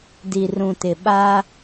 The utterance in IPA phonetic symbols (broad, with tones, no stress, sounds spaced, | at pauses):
d i˨ r ũ˨ t ɪ˨ ɓ a˦